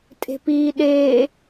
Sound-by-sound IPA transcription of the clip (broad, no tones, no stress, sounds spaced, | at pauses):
tʼ e̤ p iː ɗ eː